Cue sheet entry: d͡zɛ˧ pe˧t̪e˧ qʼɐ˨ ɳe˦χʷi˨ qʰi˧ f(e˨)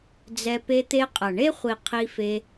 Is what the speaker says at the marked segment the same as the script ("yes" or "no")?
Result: no